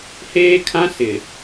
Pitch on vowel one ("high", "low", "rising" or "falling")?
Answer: high